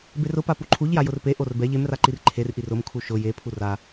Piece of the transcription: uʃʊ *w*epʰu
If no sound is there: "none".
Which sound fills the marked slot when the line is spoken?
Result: j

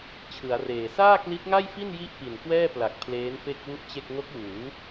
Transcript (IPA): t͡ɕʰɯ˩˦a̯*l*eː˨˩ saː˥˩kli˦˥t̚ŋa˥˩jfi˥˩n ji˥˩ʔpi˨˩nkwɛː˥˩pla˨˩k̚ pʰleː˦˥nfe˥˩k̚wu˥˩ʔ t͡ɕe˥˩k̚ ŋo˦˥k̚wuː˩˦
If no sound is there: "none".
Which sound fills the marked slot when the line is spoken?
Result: r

